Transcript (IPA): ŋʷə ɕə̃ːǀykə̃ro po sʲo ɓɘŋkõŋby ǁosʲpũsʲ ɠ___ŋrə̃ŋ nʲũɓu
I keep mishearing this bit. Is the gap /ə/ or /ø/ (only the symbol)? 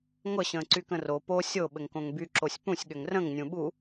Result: ø